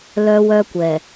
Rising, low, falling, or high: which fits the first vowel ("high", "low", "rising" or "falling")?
high